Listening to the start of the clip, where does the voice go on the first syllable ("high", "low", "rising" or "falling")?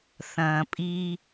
low